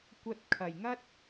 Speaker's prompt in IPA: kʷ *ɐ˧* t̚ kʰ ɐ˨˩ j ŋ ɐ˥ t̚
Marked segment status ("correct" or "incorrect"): correct